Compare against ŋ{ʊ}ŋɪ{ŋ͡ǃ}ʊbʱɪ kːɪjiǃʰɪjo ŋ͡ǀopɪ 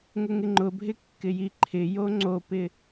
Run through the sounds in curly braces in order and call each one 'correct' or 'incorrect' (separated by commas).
correct, correct